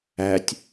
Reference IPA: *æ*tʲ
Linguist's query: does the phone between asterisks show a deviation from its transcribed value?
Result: no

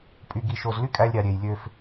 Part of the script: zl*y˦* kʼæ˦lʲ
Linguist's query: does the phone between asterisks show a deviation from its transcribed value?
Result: no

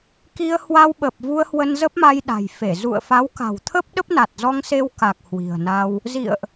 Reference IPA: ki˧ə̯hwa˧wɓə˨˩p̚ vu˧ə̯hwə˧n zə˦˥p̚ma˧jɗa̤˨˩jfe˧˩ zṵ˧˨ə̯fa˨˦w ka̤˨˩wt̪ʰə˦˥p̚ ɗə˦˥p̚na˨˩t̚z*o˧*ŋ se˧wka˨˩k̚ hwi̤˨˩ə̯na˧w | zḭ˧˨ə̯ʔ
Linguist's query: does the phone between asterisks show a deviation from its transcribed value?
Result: yes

